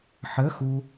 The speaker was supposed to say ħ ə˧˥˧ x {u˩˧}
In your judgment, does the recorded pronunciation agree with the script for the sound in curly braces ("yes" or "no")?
no